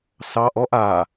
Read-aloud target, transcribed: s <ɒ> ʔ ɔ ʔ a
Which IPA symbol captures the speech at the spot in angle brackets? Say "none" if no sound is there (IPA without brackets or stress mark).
ɑ